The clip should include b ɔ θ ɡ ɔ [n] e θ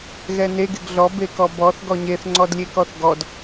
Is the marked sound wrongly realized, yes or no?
yes